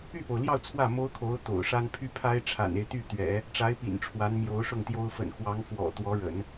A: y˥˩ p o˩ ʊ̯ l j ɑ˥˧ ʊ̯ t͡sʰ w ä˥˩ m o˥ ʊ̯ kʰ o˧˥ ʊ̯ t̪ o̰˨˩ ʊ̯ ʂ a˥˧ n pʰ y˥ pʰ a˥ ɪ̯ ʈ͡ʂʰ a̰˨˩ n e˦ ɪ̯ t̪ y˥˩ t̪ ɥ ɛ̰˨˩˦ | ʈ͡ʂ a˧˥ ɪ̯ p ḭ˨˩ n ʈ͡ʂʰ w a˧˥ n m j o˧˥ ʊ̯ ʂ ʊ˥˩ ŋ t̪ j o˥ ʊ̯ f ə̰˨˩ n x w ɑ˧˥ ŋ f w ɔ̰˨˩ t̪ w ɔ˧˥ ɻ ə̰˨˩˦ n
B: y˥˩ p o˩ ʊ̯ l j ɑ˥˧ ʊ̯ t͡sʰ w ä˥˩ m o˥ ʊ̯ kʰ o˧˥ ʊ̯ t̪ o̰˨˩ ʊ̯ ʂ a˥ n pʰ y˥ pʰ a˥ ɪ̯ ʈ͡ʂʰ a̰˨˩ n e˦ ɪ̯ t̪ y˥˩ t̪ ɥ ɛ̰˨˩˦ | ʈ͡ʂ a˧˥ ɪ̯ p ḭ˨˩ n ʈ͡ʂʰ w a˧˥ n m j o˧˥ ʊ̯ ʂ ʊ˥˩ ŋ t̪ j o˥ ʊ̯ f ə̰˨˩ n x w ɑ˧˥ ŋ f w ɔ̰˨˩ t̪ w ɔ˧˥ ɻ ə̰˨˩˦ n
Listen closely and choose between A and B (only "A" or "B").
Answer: B